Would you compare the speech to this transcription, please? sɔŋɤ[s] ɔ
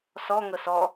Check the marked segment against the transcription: correct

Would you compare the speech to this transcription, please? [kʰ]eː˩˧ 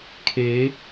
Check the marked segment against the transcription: correct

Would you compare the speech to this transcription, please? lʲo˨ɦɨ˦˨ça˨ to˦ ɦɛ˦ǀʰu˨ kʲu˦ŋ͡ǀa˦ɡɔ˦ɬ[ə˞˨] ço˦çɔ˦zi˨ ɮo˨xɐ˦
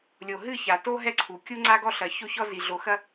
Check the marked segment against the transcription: incorrect: ɐ˨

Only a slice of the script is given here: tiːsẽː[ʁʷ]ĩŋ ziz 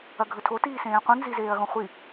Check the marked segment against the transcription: incorrect: qʷ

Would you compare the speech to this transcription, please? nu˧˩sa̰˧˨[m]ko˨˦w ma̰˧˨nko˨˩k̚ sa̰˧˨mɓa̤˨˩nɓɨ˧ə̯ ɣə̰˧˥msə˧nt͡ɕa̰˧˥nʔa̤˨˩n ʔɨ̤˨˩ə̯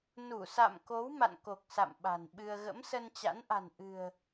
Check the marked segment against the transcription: correct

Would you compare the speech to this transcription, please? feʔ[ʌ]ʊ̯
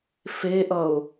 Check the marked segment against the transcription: correct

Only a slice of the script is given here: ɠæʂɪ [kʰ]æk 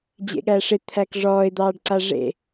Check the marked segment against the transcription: incorrect: t̪ʰ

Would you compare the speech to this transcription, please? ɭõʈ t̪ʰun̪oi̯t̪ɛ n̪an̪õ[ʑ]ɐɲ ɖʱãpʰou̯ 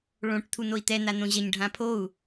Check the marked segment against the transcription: correct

